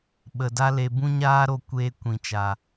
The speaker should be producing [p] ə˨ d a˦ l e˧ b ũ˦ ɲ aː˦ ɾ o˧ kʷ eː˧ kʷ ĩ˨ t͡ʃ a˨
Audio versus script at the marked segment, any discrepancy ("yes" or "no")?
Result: yes